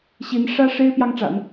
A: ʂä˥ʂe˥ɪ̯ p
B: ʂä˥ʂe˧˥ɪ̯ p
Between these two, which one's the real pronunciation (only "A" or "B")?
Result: A